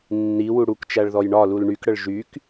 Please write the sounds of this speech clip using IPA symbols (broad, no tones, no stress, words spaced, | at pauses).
nːi wuɽukt͡ʃæɭ ðɔjɳɒlul ɳykɽəɭ ʒyk